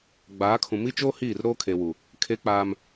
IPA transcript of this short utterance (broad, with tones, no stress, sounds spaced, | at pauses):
ɡ͡b aː˨˦ kʰ ũ˨ m i˦ t͡ʃ oː˦ h iː˦˨ r ɾ oː˦ kʰ e˨ w u˨ | kʰ e˦ k͡p aː˦ m